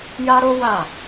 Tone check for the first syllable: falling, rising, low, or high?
high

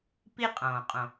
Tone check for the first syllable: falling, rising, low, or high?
high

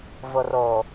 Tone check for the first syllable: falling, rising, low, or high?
low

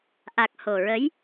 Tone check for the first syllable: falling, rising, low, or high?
low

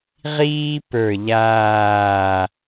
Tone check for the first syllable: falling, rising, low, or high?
high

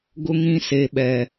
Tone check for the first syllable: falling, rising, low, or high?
high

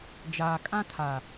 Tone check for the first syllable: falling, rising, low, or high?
low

